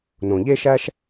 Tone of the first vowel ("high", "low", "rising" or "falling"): low